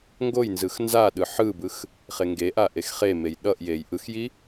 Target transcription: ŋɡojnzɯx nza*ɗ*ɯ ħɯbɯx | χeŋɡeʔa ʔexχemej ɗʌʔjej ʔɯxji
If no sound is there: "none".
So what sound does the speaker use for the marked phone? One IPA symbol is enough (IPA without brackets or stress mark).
ɗ